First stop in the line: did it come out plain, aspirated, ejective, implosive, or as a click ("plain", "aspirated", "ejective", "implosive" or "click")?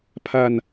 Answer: aspirated